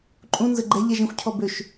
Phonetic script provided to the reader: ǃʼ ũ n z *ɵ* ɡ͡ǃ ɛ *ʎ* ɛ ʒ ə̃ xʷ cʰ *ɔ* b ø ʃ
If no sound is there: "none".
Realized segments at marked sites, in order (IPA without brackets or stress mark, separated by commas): ə, ʎ, ɔ